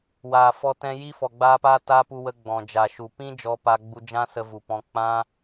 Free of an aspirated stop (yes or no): yes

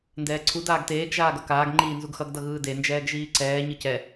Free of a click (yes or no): no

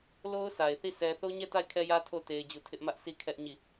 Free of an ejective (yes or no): yes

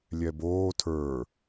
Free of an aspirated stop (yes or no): no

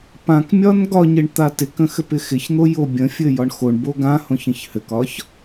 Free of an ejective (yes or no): yes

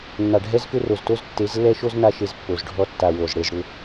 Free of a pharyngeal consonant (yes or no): yes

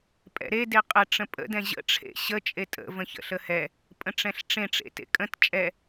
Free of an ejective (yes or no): no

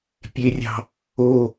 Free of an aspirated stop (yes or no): yes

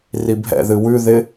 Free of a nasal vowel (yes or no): yes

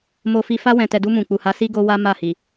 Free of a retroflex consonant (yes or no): yes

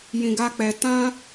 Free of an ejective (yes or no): yes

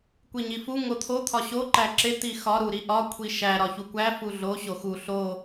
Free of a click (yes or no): no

